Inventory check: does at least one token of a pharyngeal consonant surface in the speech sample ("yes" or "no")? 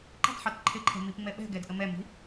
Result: yes